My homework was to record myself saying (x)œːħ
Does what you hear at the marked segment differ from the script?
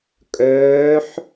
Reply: yes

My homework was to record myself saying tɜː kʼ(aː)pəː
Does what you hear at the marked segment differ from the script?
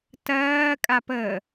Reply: yes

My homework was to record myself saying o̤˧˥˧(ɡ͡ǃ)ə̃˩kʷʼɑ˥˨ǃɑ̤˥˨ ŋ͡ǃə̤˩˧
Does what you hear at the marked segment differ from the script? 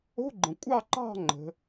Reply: no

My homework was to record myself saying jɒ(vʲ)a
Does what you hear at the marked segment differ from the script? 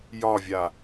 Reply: no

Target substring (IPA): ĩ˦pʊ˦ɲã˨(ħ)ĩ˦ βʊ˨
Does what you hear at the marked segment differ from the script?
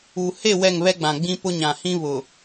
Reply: yes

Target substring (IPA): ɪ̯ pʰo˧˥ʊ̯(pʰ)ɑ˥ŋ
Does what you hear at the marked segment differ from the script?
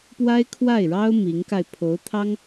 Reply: yes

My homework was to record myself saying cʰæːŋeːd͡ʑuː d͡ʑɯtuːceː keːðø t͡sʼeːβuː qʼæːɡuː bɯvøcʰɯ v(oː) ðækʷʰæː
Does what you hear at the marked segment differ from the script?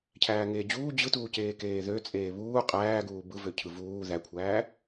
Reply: yes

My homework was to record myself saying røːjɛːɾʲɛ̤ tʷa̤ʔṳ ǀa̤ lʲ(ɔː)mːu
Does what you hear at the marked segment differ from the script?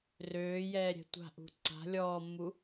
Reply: no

